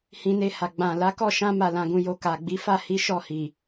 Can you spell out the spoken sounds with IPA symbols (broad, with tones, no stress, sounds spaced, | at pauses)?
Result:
h ĩ˧ n e˧ h a˨ ɡ͡b ã˨ l a˨˦ k ɔ˦˨ ʃ ã˧ m a˨ l ã˨ ɡ ũ˨ j o˨ k a˨ ɡ͡b i˨˦ f a˦˨ h i˨˦ ʃ ɔ˦˨ h i˨